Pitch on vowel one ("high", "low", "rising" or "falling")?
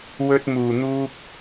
high